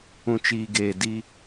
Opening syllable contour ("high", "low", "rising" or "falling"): low